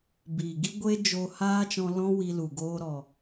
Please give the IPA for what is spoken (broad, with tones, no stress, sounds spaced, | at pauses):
b iː˨ ɡ i˦ ɡʷ e˦ d͡ʒ oː˧ h aː˦ t͡ʃ ɔ̃˧ l ɔ̃˦ w i˧ l u˨ ɡ oː˧ ɾ ɔ˨